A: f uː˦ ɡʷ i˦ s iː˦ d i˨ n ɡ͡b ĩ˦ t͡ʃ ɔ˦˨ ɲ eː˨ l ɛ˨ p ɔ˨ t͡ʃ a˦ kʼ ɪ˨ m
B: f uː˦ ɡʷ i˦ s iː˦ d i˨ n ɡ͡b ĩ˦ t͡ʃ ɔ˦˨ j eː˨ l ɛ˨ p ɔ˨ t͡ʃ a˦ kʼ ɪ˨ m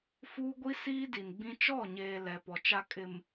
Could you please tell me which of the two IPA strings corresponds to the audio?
A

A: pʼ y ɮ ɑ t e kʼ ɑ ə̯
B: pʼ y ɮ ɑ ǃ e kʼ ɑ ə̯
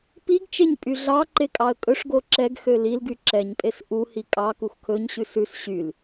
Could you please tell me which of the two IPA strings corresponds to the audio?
B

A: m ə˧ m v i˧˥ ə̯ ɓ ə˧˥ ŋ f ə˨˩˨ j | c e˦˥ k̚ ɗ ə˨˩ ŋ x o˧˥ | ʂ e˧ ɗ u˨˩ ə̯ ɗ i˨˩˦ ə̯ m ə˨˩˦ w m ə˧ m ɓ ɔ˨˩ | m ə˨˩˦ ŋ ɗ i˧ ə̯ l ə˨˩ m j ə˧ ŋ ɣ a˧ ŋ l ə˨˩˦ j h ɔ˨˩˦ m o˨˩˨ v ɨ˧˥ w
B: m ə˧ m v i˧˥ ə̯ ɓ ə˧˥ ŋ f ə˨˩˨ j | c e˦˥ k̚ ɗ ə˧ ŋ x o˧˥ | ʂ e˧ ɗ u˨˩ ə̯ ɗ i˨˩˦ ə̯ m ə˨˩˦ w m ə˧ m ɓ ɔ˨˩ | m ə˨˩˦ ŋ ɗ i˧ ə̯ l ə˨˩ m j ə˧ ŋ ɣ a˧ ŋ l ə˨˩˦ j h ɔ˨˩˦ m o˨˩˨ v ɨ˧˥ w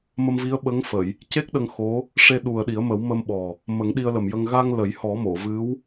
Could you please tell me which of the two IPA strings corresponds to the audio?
B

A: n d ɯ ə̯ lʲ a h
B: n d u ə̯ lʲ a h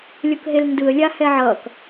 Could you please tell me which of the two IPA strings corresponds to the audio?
A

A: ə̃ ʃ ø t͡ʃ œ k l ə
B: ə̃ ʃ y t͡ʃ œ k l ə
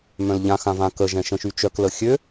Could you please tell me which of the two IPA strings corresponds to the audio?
B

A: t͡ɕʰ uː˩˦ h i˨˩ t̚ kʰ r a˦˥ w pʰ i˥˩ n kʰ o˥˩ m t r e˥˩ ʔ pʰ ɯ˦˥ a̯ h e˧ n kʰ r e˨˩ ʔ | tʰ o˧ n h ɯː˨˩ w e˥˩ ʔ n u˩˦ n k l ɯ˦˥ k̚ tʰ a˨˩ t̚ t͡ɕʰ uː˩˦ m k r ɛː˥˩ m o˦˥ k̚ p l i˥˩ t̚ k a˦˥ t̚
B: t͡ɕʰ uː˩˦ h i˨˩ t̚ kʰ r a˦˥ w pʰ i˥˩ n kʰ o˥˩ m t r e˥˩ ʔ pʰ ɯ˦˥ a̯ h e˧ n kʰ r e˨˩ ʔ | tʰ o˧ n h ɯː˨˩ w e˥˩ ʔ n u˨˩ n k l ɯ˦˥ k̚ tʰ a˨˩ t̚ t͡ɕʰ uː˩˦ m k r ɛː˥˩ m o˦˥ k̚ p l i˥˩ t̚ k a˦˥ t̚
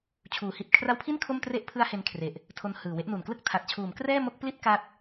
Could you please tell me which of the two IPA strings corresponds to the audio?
B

